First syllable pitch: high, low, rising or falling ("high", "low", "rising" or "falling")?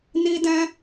high